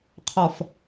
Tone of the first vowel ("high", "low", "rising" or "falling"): low